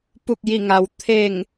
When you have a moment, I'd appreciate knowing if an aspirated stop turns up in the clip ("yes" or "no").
yes